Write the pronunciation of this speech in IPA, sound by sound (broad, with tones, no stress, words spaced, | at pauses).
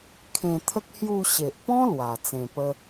kʰẽ˧t̪ʰə˦k̚ hju˧ɕe˨ʔpɔ̃˦ lwa˧ t͡sẽ˧pə˦